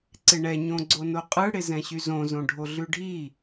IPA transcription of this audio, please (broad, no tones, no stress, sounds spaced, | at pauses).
ǀ ɪ ɳ ɛ ɲ õ ɡ͡ǀ o n o qʼ ɯ ɽ ɪ z ɛ̃ ɕ y z õ z õ ɖʱ o ɮ ʉ ɖʱ i